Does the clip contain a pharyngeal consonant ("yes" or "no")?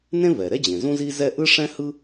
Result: no